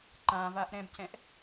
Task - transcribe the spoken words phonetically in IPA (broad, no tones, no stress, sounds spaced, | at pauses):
ǃ ã v a ʔ ɾ ɛ̃ b c ɛ̃ ʔ